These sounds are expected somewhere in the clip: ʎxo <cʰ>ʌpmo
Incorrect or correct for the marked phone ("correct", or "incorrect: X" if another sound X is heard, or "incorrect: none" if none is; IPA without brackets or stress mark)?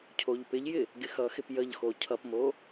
correct